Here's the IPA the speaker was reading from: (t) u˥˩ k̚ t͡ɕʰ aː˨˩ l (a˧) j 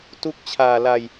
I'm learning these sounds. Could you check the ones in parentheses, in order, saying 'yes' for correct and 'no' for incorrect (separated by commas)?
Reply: yes, yes